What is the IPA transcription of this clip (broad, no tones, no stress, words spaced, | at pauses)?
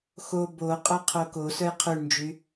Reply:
xo boqʼœ qʰokosœj qʰʉɳnd͡ʒy